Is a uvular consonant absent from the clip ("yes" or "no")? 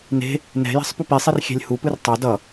yes